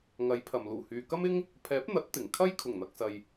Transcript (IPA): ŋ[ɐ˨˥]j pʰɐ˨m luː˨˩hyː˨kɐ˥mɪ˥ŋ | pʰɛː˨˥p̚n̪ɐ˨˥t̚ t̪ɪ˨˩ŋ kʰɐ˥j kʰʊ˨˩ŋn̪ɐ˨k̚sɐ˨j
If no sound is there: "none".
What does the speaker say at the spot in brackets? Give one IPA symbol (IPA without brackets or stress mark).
ɐ˨˥